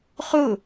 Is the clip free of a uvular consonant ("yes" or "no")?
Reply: no